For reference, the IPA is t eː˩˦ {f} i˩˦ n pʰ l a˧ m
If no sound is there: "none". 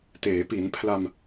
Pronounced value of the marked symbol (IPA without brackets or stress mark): p